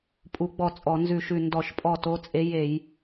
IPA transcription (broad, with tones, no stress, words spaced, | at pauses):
pʼu˨˦ɡ͡bɔ˧˩ t͡sʼɔ˧˩˧nzʉ˧˩ʃʉ˧˩ ndɔ˧˩˧ʃpʼɔ˧˩to˨˦t͡sʼe˨˦ je˧˩˧j